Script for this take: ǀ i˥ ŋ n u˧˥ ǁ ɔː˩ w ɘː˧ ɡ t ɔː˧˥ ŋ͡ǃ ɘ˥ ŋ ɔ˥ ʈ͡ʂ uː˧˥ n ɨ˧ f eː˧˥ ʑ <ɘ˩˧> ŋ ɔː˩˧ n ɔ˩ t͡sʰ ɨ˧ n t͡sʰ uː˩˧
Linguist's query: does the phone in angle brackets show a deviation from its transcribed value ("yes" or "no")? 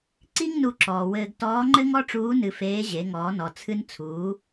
yes